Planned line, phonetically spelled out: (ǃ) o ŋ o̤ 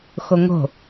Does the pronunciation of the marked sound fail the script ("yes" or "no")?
yes